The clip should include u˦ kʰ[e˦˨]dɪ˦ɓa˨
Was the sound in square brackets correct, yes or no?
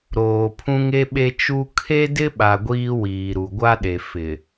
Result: no